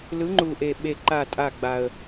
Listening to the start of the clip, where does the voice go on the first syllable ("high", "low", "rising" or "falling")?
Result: rising